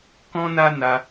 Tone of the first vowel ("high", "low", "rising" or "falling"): high